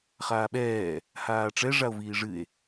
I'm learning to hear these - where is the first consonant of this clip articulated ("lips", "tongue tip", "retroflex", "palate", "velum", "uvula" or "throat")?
uvula